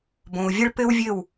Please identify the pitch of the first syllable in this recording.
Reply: low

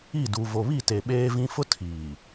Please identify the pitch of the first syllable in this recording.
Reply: falling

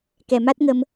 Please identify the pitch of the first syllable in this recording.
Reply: low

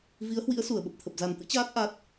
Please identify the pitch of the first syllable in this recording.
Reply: rising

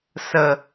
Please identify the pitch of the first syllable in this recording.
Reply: low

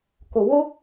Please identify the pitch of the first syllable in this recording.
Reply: low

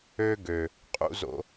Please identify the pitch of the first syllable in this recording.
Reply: high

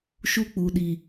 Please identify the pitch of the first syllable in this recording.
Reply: high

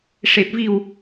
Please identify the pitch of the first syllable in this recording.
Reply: low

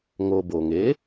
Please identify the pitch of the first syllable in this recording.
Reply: low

